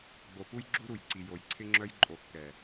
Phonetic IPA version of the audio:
ɡ͡b o˨ p u˦ j ɡ͡ǁ u˦ ɾ u˨ j ǀ i˨ j o˨ j ǀʰ ɪ˦ ŋ͡ǁ œ˦ j ǃʼ o˨ kː ɛ˨

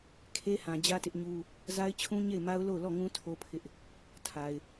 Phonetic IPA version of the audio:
kʰ e˦ h ã˨ d͡ʑ ä˦ t ɪ˦ ʔ ɲ u˦ | z a˦ ɪ̯ t͡ɕʰ ũ˦ ɲ e˦˨ ɪ̯ m a˦ ʊ̯ l o˦˨ ʊ̯ l ɔ˦˨ ŋ ũ˦ tʰ o˦ pʰ ɪ˦ ʔ | tʰ a˨ ɪ̯

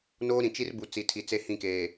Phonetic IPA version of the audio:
n oː˦ ɾ ĩ˨ t͡ʃ i˦ r b u˨ t͡s i˨ tʰ i˨ t͡s e˦ h ĩ˦˨ k eː˨

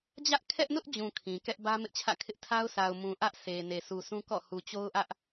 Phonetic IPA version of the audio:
d͡ʑ ä˦ ʔ kʰ ɛ˦ ʔ n ʊ˦ ʔ d͡ʑ ũ˨ kʰ ĩ˨ k ɛ˦ ʔ b ä˦ m ɪ˦ ʔ t͡ɕʰ ä̰˦˨ kʰ ɪ˦ ʔ tʰ a˦ ʊ̯ s a˨ ʊ̯ m ũ˨ ʔ ä˦ ʔ sʰ e˨ n e˨ sʰ u˨ sʰ ũ˦ k ɔ̰˦˨ h u˨ t͡ɕ o˦ ʊ̯ ʔ ä˦ ʔ

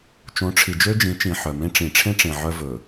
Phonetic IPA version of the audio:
t͡ʃ õ˨˦ ʈ͡ʂʰ i˨ d͡ʒ ø˦ d͡ʒ ĩ˨˦ t͡ʃ ĩ˨ ħ œ˨ m ẽ˦ ʈ͡ʂ ĩ˨ ʈ͡ʂʰ ẽ˦ ʈ͡ʂ ẽ˨ ʕ œ˦ v ɵ˨

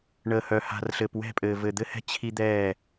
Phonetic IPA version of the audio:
ɳ əː˨ h œ˨ h a̤˨ r ɬ ɘ˨ p w ɛ̤˦˨ pʼ ɘː˨ v ɘ˨ d̪ ɘ˦ h ɛ̤˦ t͡ɕʰ i˦ d̪ ɛː˦˨

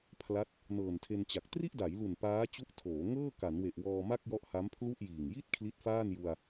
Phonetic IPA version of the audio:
pʰ l a˦˥ t̚ | n ɤː˨˩ n tʰ e˧ n t͡ɕ a˨˩ k̚ t r i˥˩ ʔ d a˩˦ j l u˨˩ n p aː˦˥ t͡ɕ u˦˥ ʔ tʰ oː˩˦ ŋ ɤː˥˩ k a˩˦ n w e˨˩ ʔ w ɔː˧ m a˥˩ k̚ j ɔ˦˥ ʔ h a˦˥ m pʰ l u˥˩ ʔ j iː˨˩ ŋ j i˥˩ t̚ kʰ l i˦˥ t̚ f aː˥˩ n j u˧ a̯

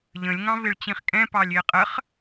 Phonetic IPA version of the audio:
ʎ ə̃ lʲ ŋ ɑ̃ v ɪ ɭ t͡ɕ ĩ χ kʼ ɛ̃ p ɑ lʲ ɪː qʼ ə χ

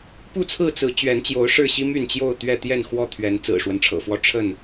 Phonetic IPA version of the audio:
p u˥˨ t͡sʰ ɹ̩˥˨ t͡s ɹ̩˨˦ t͡ɕ ɥ ɛ˨˦ n t͡ɕ j o˨˦ ʊ̯ ʂ ɻ̩˥˨ ɕ i˦ m y˥˨ n t͡ɕ j o˥˨ ʊ̯ t̪ ɥ ɛ˥˨ t̪ j ɛ˥˨ n x w ɔ˥˨ t̪ʰ ɥ ɛ˨˦ n t͡s ɹ̩˨˩ ʂ w ə˦ n ʈ͡ʂʰ ɤ̰˨˩ f w ɔ˦ ʈ͡ʂʰ ə˥˨ n

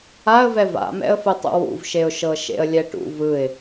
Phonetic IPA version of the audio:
a ə̯ v ɛ v a̰ m ɛ̰ ə̯ f ɯ tˤ ṵ w ṵ v ʃ e ʊ̯ ʃ ɤ ʃ ḛ ə̯ lʲ ɛ ʈ ṵ v ɯ ɪ̯

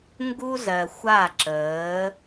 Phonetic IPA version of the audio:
ŋ ɡ u˦ z ɜ˨ xʷ a˦˨ ǁ əː˨˦

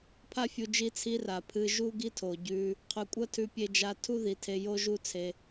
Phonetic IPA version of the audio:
pʰ a˦ fʲ u˧ d͡ʒ i˧ t͡sʰ i˧ r a˨ pʰ ɨ˧ ʒ u˦ ɡ i˦ tʰ o˨ ɟ ʉ˧ | qʰ ʉ˨ kʷʼ ɐ˦ tʰ ʉ˧ pʲ e˧ d͡ʒ a˧ tʰ u˦ ð i˨ tʰ e˧ j o˦ ʒ u˦ t͡sʰ e˧

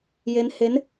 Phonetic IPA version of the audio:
j e˦˥ n h e˦˥ n

